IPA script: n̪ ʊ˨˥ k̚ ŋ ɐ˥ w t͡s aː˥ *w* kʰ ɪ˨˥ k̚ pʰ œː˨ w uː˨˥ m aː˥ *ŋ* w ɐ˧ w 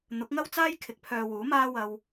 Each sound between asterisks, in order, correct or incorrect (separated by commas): incorrect, incorrect